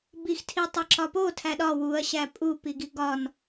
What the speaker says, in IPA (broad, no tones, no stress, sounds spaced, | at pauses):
b i x tʰ i tˤ e ǁ ɒ p o tʰ æ ɗ ɒ w u ɐ̯ ɕ æ pʼ u p i ɡ i ɡ ɒ n